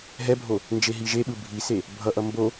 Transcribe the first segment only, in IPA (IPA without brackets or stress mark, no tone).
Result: ɦ